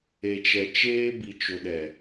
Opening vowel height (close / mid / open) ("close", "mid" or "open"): mid